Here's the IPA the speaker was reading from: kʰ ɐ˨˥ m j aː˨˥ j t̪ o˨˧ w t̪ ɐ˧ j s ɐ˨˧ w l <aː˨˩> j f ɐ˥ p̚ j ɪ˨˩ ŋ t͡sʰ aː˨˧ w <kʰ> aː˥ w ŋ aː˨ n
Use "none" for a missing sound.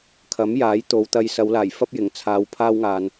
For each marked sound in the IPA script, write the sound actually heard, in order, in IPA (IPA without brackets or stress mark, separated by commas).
aː˨˩, pʰ